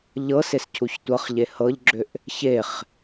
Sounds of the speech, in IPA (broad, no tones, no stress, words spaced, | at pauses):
ʎɤsescʰuç tʷɤχʎe hɤʎɡ͡ǁʏʔ | çeχ